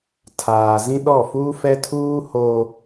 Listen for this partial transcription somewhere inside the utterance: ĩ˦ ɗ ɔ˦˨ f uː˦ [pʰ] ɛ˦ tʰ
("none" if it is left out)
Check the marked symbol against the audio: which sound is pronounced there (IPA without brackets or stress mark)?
f